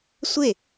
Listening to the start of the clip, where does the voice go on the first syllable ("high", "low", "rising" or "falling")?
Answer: falling